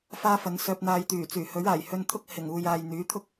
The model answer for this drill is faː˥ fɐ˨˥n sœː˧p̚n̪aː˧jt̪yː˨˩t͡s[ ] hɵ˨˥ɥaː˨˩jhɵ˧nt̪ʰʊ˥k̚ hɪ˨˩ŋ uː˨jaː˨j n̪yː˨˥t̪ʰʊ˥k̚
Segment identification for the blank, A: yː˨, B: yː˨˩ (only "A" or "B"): B